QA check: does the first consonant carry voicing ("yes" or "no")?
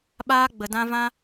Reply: yes